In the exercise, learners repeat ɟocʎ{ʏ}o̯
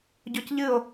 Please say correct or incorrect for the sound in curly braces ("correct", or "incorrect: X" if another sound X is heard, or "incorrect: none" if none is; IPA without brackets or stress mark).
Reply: incorrect: ɨ